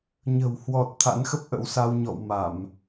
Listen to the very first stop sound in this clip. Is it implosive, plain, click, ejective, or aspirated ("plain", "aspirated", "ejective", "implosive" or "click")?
plain